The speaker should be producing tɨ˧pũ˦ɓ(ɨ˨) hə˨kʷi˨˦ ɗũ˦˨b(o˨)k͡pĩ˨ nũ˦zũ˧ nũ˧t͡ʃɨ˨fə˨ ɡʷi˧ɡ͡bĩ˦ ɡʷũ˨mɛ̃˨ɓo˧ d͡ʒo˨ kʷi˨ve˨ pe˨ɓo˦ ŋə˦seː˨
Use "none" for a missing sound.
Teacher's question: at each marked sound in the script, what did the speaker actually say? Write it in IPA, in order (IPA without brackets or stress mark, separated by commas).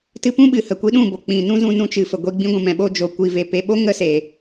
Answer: ɨ˨, o˨